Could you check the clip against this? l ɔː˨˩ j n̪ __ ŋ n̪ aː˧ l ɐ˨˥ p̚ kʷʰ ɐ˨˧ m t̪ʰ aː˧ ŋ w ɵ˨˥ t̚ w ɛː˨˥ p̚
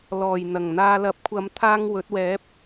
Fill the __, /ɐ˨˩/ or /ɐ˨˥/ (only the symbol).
ɐ˨˩